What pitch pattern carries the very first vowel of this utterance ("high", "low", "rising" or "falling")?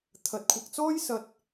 rising